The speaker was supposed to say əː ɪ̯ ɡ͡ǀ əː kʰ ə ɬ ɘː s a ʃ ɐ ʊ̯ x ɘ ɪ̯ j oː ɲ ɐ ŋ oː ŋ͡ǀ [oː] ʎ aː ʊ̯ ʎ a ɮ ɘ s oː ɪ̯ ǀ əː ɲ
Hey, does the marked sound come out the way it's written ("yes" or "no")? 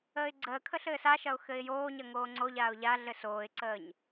no